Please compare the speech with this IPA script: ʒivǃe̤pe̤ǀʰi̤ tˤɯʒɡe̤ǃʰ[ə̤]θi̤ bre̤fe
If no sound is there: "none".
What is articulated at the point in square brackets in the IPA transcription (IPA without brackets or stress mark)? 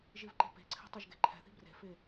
ɛ̤